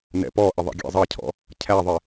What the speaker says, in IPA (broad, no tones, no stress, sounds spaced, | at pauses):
n ɛ̰ p ɔ ʔ ɪ ðˤ ɛ̰ ɡʲ æ̰ zˤ ʌ cʰ ɔ̰ | cʰ æ ðˤ ɪ